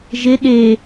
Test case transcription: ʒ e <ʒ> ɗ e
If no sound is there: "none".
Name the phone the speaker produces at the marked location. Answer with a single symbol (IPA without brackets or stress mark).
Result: none